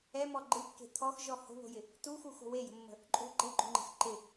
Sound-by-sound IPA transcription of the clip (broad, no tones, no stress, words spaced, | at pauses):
ɛmɔ ɡ͡ǃɯkːe̤ t̪ʰɔxʒɔ ho̤βo̤jɪ | tuxuxo̤ wejə̤mːə̤ | ǃʼo̤ ɡ͡ǃɛɡ͡ǃo̤ŋ͡ǃə̤x ǃɪ